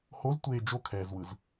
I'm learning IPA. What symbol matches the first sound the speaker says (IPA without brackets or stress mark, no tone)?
h